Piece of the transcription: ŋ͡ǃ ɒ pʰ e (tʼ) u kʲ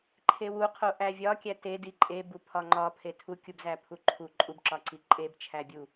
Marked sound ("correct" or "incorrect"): incorrect